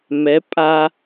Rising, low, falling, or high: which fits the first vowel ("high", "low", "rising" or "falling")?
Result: rising